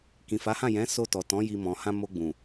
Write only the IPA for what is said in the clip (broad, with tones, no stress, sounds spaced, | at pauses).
k ĩ˨ f a˨˦ h ã˦˨ j ɛ̃˨˦ s o˧ t ɔ˨ t ɔ̃˨˦ j i˧ m ɔ̃˨ h ã˧ m o˧ ɡ͡b ũ˨